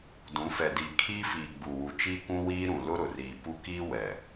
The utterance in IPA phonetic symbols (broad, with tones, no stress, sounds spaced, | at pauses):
d ũ˨˦ f ɛ˨ d i˨ kʰ iː˦ f iː˨ ɡ͡b u˨ w u˨ t͡ʃ iː˦ kʷ ũ˦ w iː˦ ɾ ũ˨ l ʊ˦ ɾ ʊ˨ r iː˨ p u˦ k iː˦ w ɛ˨